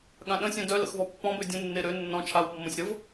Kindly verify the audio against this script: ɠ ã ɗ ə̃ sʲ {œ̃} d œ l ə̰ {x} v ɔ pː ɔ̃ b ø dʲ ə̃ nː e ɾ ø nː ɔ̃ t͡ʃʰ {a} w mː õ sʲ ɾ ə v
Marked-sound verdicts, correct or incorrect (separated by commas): correct, correct, correct